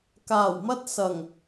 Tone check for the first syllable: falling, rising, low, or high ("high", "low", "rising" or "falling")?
low